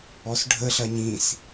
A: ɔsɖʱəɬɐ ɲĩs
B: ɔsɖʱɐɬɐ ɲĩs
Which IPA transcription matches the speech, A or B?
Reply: A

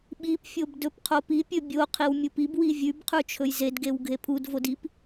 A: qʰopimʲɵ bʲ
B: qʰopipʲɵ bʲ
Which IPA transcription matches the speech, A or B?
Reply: B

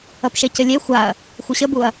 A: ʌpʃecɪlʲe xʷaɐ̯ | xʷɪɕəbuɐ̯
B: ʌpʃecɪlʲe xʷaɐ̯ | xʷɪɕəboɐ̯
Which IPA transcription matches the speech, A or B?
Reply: A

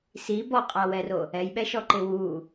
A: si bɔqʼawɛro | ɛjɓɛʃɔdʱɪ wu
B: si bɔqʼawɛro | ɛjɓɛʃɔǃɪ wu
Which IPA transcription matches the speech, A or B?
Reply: B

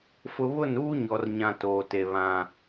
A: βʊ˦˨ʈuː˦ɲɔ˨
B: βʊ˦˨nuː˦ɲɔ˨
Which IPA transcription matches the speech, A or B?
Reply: B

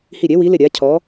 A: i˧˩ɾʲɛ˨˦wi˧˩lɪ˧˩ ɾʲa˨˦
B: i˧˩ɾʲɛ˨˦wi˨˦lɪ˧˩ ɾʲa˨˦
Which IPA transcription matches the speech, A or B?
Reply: B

